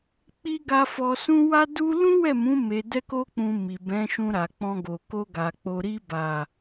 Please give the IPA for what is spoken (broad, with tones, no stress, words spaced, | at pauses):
k͡pi˦ ɡa˧ fɔ˧sũ˦ wa˦du˦ lũ˦wɛ˦˨mũ˨˦ me˧dɛ˦ko˦k͡pũ˧ mi˨bɛ̃˨˦ʃũ˧ ɾa˨k͡pɔ̃˧ɡo˨ ko˧ɡa˨ k͡po˨ɾi˧ba˨